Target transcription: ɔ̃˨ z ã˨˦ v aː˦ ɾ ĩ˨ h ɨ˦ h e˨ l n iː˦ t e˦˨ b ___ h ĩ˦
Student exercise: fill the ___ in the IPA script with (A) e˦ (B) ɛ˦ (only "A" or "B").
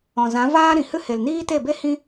A